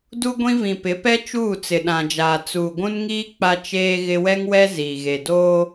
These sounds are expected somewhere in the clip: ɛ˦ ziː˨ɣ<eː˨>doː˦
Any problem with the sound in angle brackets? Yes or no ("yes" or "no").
yes